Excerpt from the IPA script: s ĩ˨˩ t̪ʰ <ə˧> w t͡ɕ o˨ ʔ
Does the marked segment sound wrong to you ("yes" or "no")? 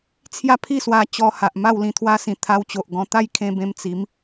yes